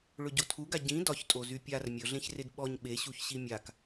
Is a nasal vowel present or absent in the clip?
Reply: present